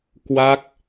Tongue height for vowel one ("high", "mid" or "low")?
low